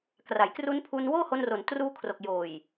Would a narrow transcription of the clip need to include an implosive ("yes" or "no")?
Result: no